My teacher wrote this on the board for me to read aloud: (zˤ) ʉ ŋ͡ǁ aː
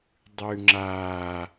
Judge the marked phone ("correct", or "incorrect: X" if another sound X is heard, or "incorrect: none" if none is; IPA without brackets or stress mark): incorrect: dˤ